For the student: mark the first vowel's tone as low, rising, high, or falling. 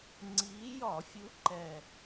rising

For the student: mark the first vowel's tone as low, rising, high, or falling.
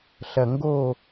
low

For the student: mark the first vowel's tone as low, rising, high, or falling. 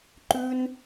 high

